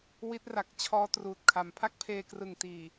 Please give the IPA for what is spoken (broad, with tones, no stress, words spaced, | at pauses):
wi˦˥t̚ra˨˩k̚t͡ɕʰɔː˦˥ truː˨˩t̚kʰa˩˦m pʰa˥˩k̚pʰeː˧krɯ˨˩ŋtiː˨˩